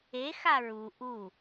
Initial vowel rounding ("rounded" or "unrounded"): unrounded